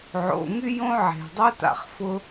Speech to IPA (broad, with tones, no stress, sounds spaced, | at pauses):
ʕ o̰˩ ŋ y˥ j õ˥ ʕ e̤˩ dˤ ɵ˥ t a̰˩ χ f ʊ˥